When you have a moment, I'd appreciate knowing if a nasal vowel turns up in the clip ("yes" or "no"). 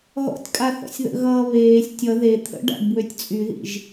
no